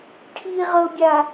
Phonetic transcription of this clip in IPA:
ʈʰ i ʁ ɤ bʲ a

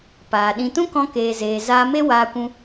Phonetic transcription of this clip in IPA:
p aː˨ ɗ ĩ˧ t ũ˦ k ɔ̃˧ k eː˨ z eː˨ z aː˧ m e˦ w aː˧ kʷ ũ˧

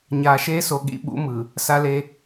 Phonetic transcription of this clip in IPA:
ɲ aː˨ ʃ eː˦ s o˨ ɠ ḭ˦ ɓ ṵ˦ m ɯ˨ | s a˦ l e˦

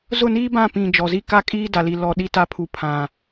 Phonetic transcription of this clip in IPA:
z ʊ˦˨ n iː˦ b ã˦˨ p ĩ˨ d͡ʒ ɔ˨ z i˦ k a˦ kʼ iː˦ d a˨ l i˨ l ɔ˨ ɗ i˦ t a˦ pʰ u˨ pʰ ã˨

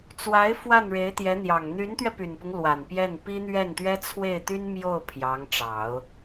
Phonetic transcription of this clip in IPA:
t͡s w a˧˥ ɪ̯ f w a˥˩ n ɻ e˧˥ ɪ̯ t̪ j ɛ˧˥ n̪ j ɑ˨˩ ŋ n̪ y˧˥ n t̪ ɥ ɛ˧ p y˨˩ n p ʊ˦ ŋ l w a˨˩ n p j ɛ˥˩ n p i˥ n̪ ɥ ɛ˥˩ n t̪ ɥ ɛ˥ t͡sʰ w e˥˩ ɪ̯ t̪ y˥ n m j o˥˩ ʊ̯ pʰ j ɑ˧˥ ŋ ʈ͡ʂ ɑ˨˩˦ ʊ̯

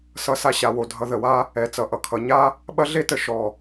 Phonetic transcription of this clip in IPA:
s ʌ˧ s a˧ ɕ a˨ w o˨ dʱ ʌ˧ ð ə˨ w a˦ | ɛ˨ t͡s ʌ˨ ʔ ʌ˨ kʰ ʌ˨ ɲ a˦ | ɓ ɐ˦ ɮ e˦ t ə˧ ʃ ɔ˨

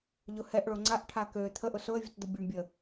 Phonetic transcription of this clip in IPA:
ʎ ʊ h ɛ ʔ ɭ o ŋ͡ǀ a ʔ ʈʰ a k ø t̪ʰ ə ʔ ʊ s ʊ ə̯ vʲ ə t d̪ ʊ bʲ o ɳ bʲ ə

